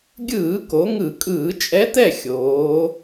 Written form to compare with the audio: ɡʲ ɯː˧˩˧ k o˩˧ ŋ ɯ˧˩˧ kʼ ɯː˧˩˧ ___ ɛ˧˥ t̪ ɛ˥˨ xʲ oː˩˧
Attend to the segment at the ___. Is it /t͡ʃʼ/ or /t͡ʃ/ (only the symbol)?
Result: t͡ʃʼ